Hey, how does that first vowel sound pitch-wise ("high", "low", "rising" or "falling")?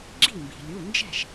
falling